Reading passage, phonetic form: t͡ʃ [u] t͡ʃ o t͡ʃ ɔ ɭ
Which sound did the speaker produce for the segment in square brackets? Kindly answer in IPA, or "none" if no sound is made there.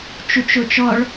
u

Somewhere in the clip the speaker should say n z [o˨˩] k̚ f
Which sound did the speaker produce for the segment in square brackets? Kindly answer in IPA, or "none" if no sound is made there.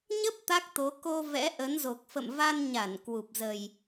o˨˩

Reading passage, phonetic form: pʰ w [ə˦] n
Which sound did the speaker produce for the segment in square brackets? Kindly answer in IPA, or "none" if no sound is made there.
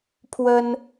ə˦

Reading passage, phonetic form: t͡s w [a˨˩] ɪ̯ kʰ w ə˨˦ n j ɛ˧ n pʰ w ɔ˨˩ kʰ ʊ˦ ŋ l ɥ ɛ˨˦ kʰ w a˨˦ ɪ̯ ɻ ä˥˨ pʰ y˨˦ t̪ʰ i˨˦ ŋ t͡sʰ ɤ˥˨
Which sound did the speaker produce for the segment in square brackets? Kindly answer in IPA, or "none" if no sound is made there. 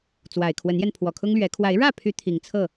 a˨˩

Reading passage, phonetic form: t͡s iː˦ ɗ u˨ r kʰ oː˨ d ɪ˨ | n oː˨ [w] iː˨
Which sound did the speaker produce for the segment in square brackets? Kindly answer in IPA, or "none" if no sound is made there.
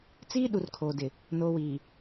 w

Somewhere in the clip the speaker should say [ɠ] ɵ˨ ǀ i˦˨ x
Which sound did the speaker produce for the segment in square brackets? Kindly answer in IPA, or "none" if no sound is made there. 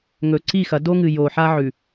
ŋ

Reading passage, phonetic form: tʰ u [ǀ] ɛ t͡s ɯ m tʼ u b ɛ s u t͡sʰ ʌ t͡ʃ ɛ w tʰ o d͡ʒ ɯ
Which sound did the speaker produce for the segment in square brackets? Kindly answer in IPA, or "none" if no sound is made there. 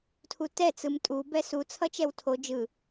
t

